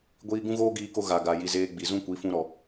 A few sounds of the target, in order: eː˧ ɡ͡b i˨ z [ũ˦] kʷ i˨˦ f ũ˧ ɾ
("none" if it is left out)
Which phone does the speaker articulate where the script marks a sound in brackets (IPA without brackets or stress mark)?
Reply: ũ˦